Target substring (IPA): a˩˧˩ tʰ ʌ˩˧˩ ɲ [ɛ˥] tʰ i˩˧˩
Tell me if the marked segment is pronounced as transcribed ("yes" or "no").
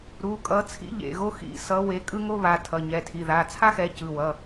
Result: no